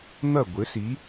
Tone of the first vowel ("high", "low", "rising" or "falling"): falling